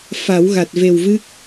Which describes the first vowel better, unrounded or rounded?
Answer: unrounded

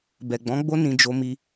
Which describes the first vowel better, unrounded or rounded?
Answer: unrounded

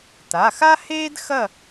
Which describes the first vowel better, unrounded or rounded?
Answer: unrounded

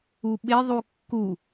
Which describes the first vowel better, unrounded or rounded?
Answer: rounded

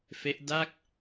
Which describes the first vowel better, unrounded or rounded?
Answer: unrounded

